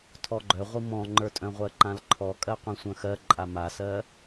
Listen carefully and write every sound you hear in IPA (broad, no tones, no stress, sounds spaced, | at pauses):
tʰ ɔ ɡ͡ǃ œ ʁʷ i m ɔ̃ ŋ͡ǃ ə˞ tʼ œ̃ ʁʷ ɜ ǃ ã l ǃʰ ɔ kʼ ɜ qʷ ĩ sʷ œ̃ x ɜ ǃʼ a m a s ɜ